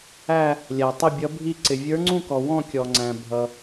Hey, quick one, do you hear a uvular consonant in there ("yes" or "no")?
no